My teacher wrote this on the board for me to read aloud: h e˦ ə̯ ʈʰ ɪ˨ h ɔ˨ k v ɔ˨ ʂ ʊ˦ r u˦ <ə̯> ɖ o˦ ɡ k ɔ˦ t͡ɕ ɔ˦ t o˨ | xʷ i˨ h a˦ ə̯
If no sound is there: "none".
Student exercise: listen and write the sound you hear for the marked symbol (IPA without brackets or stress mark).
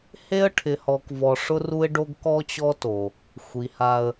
ɪ̯